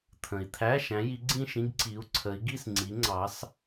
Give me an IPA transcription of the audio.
t̪ʰ ə̃˨ i̯ t̪ʰ æ˧˥˧ ʃ æ̃˨˦ j i˨˦ ɡ͡ǀ ĩ˥˧ ʃ ĩ˧˥˧ ɡ ǀ i˨˦ u̯ ǀʰ ə˨˦ i̯ ɡ i˥˧ s ŋ͡ǀ i˨˦ ŋ͡ǀ ɑ˨˦ s

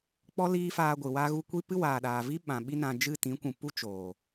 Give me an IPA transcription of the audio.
k͡p ɔ˦ l iː˦ f aː˧ ɡʷ ɨ˨ w a˦ ɣ u˦ kʷ i˦ p ɨ˦ w aː˨ ɗ aː˨ v i˦ ɓ ã˨ ɓ i˦ n ã˧ d͡ʒ ɨ˦˨ t ĩ˨˦ kʷ ũ˨ p u˦ t͡ʃ oː˨

